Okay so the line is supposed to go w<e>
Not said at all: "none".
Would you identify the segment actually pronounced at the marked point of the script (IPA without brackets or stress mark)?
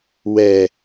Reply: ɛ